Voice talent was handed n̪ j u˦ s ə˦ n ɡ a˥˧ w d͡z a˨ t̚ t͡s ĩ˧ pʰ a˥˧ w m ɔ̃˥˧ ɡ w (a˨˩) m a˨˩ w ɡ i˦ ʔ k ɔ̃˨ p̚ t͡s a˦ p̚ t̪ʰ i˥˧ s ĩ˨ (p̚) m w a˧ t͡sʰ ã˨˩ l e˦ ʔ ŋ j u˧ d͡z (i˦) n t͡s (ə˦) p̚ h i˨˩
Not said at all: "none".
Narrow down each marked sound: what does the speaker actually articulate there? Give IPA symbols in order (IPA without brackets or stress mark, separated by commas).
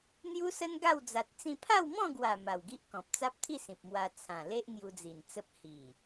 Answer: a˨˩, p̚, i˨˩, ə˦